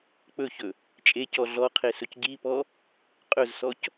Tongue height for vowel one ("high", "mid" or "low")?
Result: mid